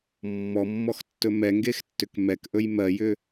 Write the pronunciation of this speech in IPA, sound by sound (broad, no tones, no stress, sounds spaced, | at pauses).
mː ɔ mː ɔ x tː ɵ m ɛ ŋ ɡ e x tː ʏ k m ɛ k ʔ ɵ j m ɜ j ʏ